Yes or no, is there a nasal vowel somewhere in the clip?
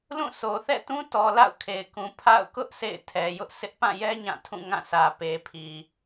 yes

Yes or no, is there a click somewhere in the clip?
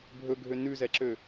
yes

